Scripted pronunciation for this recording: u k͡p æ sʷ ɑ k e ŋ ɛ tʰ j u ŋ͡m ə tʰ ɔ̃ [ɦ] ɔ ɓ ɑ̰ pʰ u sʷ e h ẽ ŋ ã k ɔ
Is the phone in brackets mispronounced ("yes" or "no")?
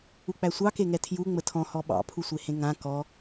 yes